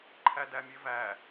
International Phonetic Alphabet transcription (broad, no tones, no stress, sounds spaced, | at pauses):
ǃʰ æ d æ mʲ e v æ